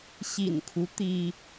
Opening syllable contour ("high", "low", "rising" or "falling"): low